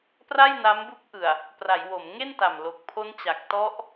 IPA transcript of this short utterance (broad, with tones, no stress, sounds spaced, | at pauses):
p r a˥˩ j n a˦˥ m b u˦˥ k̚ ʔ ɯ˨˩ a̯ | p r a˩˦ j w o˩˦ m ŋ e˥˩ n t a˨˩ m l o˨˩ k̚ pʰ o˦˥ n t͡ɕ a˨˩ k̚ t ɔ˦˥ ʔ